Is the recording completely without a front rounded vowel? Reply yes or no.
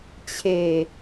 yes